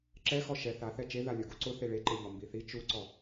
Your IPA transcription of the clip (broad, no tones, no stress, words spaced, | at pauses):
ǁɛ xɔʃɛ θa θɛt͡ʃe ðalʲʊ ɡuǀʊ θeɭeǃeʎɔ mbiθi t͡ʃuǀɔ